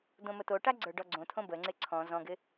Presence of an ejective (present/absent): absent